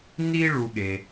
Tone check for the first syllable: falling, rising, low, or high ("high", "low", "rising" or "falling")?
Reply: high